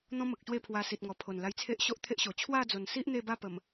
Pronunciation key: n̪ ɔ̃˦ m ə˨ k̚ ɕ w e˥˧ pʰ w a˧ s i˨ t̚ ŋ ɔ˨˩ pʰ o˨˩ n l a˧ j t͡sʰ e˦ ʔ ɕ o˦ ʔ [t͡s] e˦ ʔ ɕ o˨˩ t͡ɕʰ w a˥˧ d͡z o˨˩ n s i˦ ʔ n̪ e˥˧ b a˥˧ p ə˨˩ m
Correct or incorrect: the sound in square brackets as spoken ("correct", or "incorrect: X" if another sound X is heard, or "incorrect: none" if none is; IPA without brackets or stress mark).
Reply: incorrect: t̪ʰ